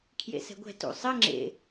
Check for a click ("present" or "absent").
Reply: present